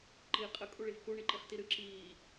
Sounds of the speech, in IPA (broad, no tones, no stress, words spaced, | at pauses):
ǃiːqʼəkʼuɭiv θuɳiǃiχti ɾɨǁiː